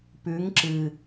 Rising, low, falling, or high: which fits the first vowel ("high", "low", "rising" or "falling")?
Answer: rising